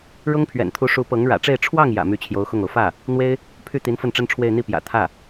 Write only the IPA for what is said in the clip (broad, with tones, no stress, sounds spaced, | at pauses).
ɻ ʊ˥ ŋ pʰ ɥ ɛ̰˨˩ n t̪ʰ u˧˥ ʂ u˧˥ p ɤ˧˥ ŋ ɻ ä̰˨˩ ʈ͡ʂ e˥˧ ɪ̯ ʈ͡ʂʰ w ɑ˥˩ ŋ j ä̰˨˩ m y˧˥ t͡ɕʰ j o˧˥ ʊ̯ x ʊ˥˩ ŋ o˩ ʊ̯ f ä˥˩ | n̪ w e˥ ɪ̯ | pʰ y˥˩ t̪ i˧˥ n f ə˥˩ n ʈ͡ʂ ə˥ n ʈ͡ʂʰ w e˥˧ ɪ̯ n̪ i˥˩ p j ä̰˨˩ t̪ʰ ä˥˩